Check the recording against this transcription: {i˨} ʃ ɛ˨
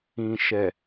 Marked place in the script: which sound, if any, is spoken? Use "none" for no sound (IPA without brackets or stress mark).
ĩ˨